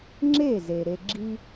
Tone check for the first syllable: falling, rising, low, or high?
falling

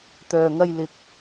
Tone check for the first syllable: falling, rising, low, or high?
low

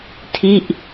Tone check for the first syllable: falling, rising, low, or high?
falling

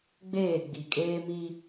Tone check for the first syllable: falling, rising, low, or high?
falling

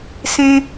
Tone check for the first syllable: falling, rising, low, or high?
high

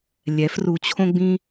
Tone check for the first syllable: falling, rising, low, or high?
rising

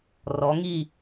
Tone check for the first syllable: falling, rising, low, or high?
rising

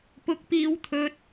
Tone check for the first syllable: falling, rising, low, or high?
high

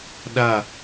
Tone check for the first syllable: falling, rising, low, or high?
falling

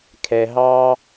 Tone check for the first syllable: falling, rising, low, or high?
low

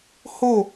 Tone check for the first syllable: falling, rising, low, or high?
falling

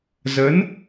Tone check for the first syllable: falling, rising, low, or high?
rising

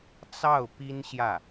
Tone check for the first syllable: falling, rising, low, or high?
falling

